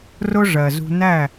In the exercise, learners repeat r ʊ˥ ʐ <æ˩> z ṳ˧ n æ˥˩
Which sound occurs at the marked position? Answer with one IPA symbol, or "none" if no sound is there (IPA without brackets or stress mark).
ɜ˩